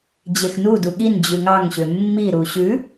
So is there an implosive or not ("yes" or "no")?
yes